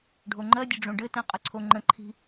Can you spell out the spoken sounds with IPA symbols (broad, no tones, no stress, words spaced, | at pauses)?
ɖʱoŋ͡ǃɜdʲə ɖ͡ʐõɖɘtɛ̃ qʼɘǀʰoŋ͡ǃə̃ǃʰi̤